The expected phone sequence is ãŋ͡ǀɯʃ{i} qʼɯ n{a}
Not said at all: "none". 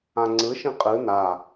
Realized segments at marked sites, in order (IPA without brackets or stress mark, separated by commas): ĩ, a